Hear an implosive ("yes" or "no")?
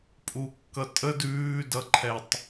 no